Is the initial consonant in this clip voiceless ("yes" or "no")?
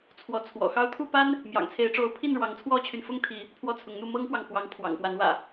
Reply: yes